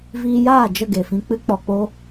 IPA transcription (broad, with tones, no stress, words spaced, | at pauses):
viː˧jaː˦˨ d͡ʒə˦˨ɡe˨fĩ˧ k͡pɨ˦k͡pɔ˧k͡po˦